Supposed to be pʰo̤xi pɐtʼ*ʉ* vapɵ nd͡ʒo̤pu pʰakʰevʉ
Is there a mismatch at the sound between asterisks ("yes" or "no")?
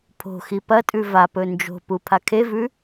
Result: no